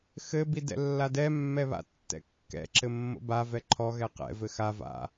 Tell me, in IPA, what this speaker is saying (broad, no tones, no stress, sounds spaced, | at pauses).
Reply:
x ɘ b i d ɛ̰ lː a d ɛ mː ɛ β a̰ tː ɛ̰ kː ɛ̰ ǁ ɘ mː o̰ b a v ɛ ǃʰ ɔ ɣ ɛ q ɛ̰ v ɘ x a v a̰